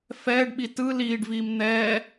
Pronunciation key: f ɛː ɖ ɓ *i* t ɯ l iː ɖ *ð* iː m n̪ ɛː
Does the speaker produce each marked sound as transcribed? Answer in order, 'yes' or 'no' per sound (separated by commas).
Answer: yes, no